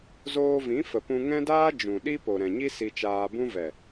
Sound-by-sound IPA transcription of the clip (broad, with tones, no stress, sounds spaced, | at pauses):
z oː˧ v ĩ˨˦ f ə˨ p ũ˧ ŋ ɛ̃˦ d aː˦ d͡ʒ ũ˨ ɗ i˦ p o˨ ɾ ɛ̃˨ ɲ i˦ s i˧ t͡ʃ aː˧ b ũ˦ v ɛ˨